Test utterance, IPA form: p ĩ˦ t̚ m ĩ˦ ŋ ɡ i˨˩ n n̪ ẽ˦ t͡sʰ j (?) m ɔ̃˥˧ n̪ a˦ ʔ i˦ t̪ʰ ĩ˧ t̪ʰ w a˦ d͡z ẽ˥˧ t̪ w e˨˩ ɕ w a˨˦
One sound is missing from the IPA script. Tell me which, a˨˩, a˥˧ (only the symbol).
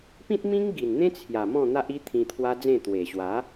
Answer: a˨˩